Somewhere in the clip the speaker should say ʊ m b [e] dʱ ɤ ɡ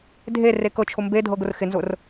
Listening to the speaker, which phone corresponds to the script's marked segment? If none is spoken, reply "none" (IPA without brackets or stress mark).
e